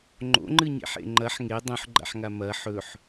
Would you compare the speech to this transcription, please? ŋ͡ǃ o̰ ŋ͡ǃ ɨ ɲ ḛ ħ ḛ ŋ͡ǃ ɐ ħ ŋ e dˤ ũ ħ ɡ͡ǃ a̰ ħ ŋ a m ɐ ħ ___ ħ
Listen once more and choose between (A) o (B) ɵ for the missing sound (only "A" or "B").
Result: B